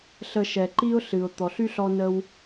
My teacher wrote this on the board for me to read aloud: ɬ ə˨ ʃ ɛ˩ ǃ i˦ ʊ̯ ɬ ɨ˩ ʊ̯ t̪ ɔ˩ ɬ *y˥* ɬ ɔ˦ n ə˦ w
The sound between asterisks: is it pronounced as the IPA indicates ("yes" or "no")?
yes